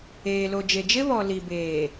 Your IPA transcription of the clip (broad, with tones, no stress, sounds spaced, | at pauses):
eː˨ l o˨ d͡ʒ e˨ d͡ʒ ɪ˦ β ɔ˨ l i˨ b eː˨